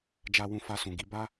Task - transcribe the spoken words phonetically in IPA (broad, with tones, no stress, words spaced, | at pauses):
d͡ʒa˧wũ˧ fa˧sũ˨ɡi˨˦ ba˦